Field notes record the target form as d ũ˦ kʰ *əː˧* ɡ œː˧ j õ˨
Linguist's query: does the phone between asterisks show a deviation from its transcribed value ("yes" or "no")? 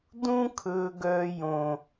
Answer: yes